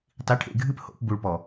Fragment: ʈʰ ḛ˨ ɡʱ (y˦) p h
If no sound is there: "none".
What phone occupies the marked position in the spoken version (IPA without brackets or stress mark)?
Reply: ɨ˦